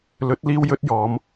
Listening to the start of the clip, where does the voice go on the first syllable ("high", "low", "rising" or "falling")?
rising